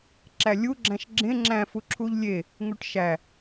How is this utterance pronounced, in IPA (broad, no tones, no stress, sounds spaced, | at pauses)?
ǁ æ lʲ u ɡ͡ǁ æ̃ ʃ ɡ͡ǁ ẽ ŋ͡ǁ æ̃ f u ǁʰ u ʎ lʲ e | ŋ u ʈ ʃ æ